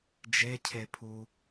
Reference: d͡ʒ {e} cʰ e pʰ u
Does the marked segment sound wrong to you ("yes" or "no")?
no